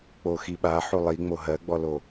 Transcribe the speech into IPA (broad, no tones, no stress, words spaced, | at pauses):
k͡poxiɓa ħulˠi ŋ͡moɦɜɡ͡bɔlo